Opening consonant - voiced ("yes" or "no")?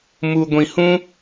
yes